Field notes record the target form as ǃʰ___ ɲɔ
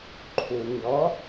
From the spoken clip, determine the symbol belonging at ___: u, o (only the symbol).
u